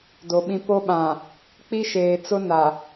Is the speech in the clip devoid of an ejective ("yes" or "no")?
yes